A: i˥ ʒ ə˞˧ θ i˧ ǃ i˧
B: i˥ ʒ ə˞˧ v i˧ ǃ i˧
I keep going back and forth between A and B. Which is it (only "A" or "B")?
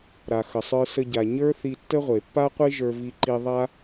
B